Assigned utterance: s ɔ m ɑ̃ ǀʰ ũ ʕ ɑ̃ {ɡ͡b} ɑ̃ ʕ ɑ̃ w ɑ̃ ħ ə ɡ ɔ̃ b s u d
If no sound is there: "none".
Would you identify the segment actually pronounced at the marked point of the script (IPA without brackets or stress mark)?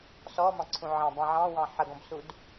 b